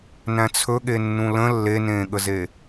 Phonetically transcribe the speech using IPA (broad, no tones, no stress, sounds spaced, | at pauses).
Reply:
n æ̃ t͡sʰ ɵ ɠ e nː ũ l ə̃ lː e n ẽː ɠ ə z e